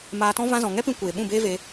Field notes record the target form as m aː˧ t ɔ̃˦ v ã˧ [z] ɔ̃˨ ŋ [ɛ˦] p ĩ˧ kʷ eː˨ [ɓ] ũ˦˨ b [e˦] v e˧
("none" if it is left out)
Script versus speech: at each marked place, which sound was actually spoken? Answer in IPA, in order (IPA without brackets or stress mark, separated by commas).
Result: z, ɛ˦, ɓ, eː˦